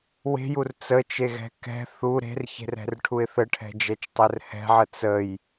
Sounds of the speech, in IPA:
w e̤ j u r t͡s ə t͡ʃ e ɣ ɛ̤ k ɛ̤ θ u ɾ e̤ r ç e̤ r ɛ̤ r ʈʰ u ɪ̯ θ ə ʈʰ ɛ̤ d͡ʒ ɛ t͡ʃ tˤ ɛ r h ɛ̤ ʕ ə t͡s ə j

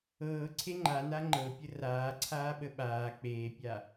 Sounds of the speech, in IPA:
ɤː ǀʰ e ŋ͡ǃ a n a ŋ͡ǃ ɤ pʲ ə r aː ǀʰ aː ɓ ə ɓ aː k͡p eː pʲ a

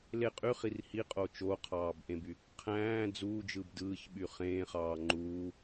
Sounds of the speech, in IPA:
l e qʼ y χ i r h i qʼ o t͡ʃ o qʰ ɑː b ʔ ẽ b y | qʰ æ̃ː d͡z uː d͡ʒ ɯ b d ɯː ç ɓ y χ ẽː χ ɑː ŋ͡ǃ uː

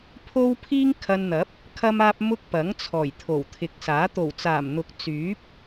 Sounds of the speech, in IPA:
pʰ o˥ w pʰ iː˥ ŋ kʰ ɐ˧ n n̪ ɐ˨˥ p̚ | kʰ ɐ˥ m aː˥ p̚ m ʊ˥ k̚ p ɐ˨˥ ŋ t͡sʰ ɔː˨˩ j t̪ʰ o˨˩ w t̪ʰ ɪ˨˥ k̚ s aː˨˥ t̪ o˨˩ w t͡s aː˨˩ m n̪ ʊ˨˥ k̚ t͡s yː˨˥ p̚

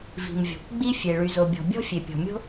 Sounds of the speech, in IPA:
v i̤˩ m vʲ ɔ̤˩ kʷ ɡ͡b i˥ fʲ e˩ ɭ y˩ z o˩ bʲ ɔ̤˩ bʲ ɔ̤˥ fʲ e˩ pʲ ɔ̤˩ mʲ o̤˥

